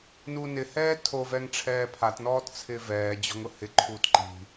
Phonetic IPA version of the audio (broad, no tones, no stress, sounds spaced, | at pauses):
n uː n ɪ h ɛː tʰ o v ɛ ŋ ʈ͡ʂʰ ɛː pʰ a t n ɔː t t͡sʰ ɪː v ɛː d͡ʑ ɔ̤ ŋ ʊ h ɪ ǃʰ uː t ǃ i̤